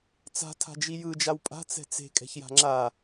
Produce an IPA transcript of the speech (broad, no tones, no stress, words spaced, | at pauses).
t͡sa̤ tʰa̤d͡ʒijɯ d͡ʒawpʼa̤ t͡sɛ̤t͡se̤ kʼɛ̤çja̤ŋ͡ǁa